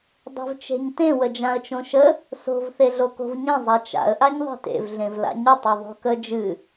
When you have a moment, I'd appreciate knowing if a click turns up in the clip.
no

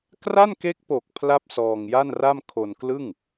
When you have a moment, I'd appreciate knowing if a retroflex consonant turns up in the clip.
no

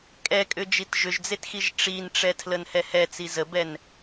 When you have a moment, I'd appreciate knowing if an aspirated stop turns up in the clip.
yes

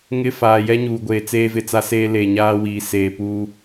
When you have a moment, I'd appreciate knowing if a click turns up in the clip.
no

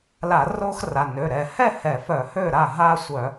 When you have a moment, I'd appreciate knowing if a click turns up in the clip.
no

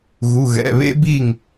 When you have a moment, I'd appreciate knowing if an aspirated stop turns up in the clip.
no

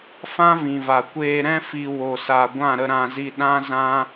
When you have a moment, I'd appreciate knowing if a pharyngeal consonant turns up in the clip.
no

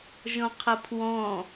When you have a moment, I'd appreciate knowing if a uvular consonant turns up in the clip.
yes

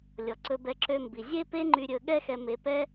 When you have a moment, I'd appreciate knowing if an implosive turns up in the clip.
yes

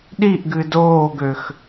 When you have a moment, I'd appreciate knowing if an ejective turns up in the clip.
no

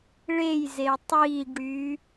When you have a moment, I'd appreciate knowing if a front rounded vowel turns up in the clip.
yes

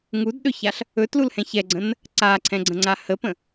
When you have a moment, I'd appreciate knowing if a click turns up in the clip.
yes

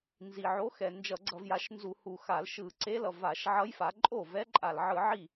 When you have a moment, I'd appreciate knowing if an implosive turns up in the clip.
no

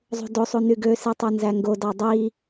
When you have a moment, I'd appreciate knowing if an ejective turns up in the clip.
no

